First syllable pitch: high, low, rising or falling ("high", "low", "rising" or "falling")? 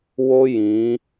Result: high